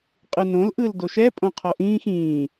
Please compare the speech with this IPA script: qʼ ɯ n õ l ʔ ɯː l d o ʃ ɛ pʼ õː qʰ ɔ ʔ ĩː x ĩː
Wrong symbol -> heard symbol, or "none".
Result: õː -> õ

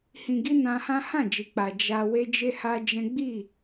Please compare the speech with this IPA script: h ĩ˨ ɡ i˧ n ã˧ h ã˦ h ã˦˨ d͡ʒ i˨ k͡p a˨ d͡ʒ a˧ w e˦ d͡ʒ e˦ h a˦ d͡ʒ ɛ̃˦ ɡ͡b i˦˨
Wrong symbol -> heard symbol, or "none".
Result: none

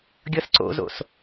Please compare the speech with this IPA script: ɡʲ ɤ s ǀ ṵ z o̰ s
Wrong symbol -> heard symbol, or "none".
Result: ṵ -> o̰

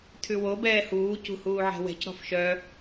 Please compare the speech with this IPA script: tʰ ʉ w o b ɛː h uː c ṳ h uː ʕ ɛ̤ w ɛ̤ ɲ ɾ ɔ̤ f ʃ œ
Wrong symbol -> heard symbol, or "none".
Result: ɲ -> c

